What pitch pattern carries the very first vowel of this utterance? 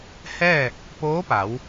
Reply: falling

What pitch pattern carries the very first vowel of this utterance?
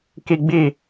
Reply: high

